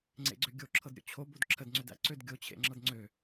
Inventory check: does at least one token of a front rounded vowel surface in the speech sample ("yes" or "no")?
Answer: yes